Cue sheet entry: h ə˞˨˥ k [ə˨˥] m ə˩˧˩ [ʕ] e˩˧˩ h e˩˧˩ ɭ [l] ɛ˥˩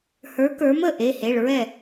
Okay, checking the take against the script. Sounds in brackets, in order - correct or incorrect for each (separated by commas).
incorrect, incorrect, incorrect